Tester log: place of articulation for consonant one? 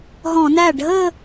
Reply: glottal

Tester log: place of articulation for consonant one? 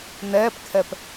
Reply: alveolar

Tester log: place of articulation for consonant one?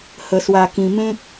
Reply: glottal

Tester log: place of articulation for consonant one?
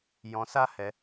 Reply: palatal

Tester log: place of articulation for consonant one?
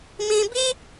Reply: labial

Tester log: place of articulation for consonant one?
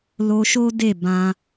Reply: alveolar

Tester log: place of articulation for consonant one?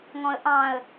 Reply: velar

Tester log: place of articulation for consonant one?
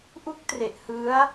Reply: glottal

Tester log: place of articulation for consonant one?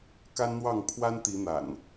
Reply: velar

